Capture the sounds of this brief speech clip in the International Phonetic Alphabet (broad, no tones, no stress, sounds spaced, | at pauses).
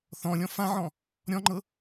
θ ɔ̃ lʲ ɔ̃ f ã ʕ ɔ̃ | ɾʲ ɔ̃ ŋ͡ǃ ɤ